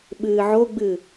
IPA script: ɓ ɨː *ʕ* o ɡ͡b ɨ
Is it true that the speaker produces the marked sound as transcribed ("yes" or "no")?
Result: yes